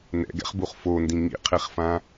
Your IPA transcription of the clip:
n ɛ̰ ɡ ɛ̰ χ b u χ f o n d ĩ ŋ ḭ qʰ e χ f ã

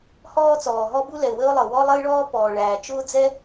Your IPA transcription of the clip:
h ɔː˥ t͡s ɔː˩ ɦ ɔ˥ b u˥ l ɛ˩ ʊ̯ w əː˥ ʊ̯ lˠ ɤ˩ w ɔ˥ lˠ ə˥ ɪ̯ ɭ ɔː˥ p ɔː˩ ɭ æː˩ t͡ʃ ʊː˥ d͡z ɛ˥

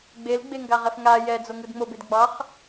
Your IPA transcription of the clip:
ɡ͡b e l ɡ͡b e ŋ ɡ a ʁ ɛ f ŋ a j ɛ d͡z o ŋ ɯ d ŋ͡m o b e d ɡ͡b ɑ χ

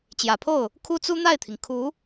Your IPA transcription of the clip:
t͡ɕ j ä˨˩ pʰ o˥˩ ʊ̯ | kʰ u˥ t͡s u˥ n̪ a˥˩ ɪ̯ t̪ʰ i˩ ŋ kʰ u˧˥

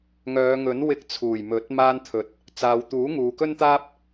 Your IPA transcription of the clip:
ŋ œː˨˧ ŋ ɵ˨˥ n w ɪ˧ k̚ t͡sʰ uː˨˩ j m ɵ˨˥ t̚ m aː˥ n t̪ʰ ɵ˧ t̚ | t͡s aː˨ w t̪ uː˨˥ ŋ uː˨ k ɵ˥ n t̪ aː˥ p̚

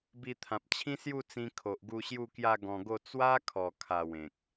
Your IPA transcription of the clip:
b i˧ t̪ʰ ã˨ p̚ t͡ɕʰ ĩ˦ s j u˥˧ t͡s ĩ˧ kʰ o˨ ʔ ɡ u˧ ɕ j u˥˧ k j a˥˧ ɡ ɔ̃˧ ɡ o˥˧ t͡s w a˦ kʰ ɔ˨˩ kʰ a˨˩ w ẽ˨ k̚

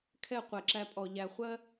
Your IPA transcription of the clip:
kʰ ɛ˦˨ qʷ ɛ˨ ǁ æ˧ pʼ ɔ˨ ʎ æ˨ χʷ ɜ˦

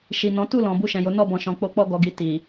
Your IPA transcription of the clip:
ʃ i˨ n ɔ̃˨˦ t u˦˨ l ɔ̃˨ b u˧ ʃ ɛ̃˨ j o˨˦ n ɔ˦˨ b ɔ̃˨ ʃ ɔ̃˨ k͡p o˧ k͡p ɔ˧ ɡ ɔ˨ ɡ i˨ t i˨

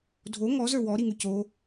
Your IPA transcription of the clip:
dʱ o ŋ ɔ z ə˞ w ɔ ɾ i ŋ ʉ c o

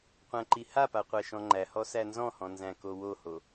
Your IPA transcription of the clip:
qʷ æ̃ ǃ i h a p a qʷ æ ʃ ɔ̃ ŋ͡ǃ æ h ɔ s æ n z ɔ̃ h ɔ̃ n z æ̃ k o w o h o

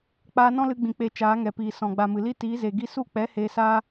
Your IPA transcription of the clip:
k͡p aː˧ n ɔ̃˦ l ɨ˧ ɡ͡b ĩ˨ k͡p e˧ t͡ʃ aː˨˦ ŋ ɛ˨ p iː˨ s ɔ̃˨ ɡ͡b a˨ m ɨ˨ l i˦ t iː˨˦ z e˨ ɡ i˦ s u˦˨ k͡p ɛ˨˦ h eː˧ s aː˦

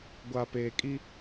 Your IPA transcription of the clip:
ɡʷ a˨ p e˨ kʼ i˦

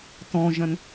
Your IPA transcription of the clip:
t ɔ̃ ʒ ɐ̃ n

